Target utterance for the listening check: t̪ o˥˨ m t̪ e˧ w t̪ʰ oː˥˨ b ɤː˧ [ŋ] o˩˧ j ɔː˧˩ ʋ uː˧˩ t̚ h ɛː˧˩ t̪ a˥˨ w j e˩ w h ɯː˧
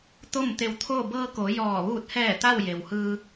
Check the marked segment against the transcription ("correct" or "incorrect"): incorrect